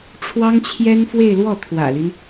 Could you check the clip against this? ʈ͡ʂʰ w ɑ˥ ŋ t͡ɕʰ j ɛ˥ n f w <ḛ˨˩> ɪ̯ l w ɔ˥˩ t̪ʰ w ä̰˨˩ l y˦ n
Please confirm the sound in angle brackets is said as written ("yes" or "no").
no